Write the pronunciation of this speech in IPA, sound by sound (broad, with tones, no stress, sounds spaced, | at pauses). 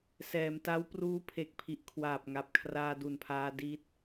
s ɛː˩˦ m t a˦˥ w p r uː˦˥ pʰ e˨˩ k̚ pʰ i˨˩ ʔ kʰ w aː˨˩ p̚ ŋ a˨˩ p̚ kʰ r aː˧ d u˨˩ n pʰ aː˧ d i˦˥ t̚